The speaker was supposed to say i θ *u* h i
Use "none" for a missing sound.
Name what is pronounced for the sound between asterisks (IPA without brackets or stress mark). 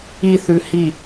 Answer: ʉ